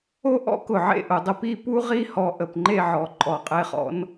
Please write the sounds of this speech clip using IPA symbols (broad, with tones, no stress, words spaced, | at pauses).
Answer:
o˥ʔɔ̰˥kʊ˧˩ ʕḛ˥˧ʔʊ˩˧dˤə˧pi˥˧ pu˥ʁi˥˧hɔ˧ ʔə˧˩pŋ͡ǃe˥˧ʕɔ˩˧ ǃʼɔ˧˩qʼe˥˧χɔ̰˥n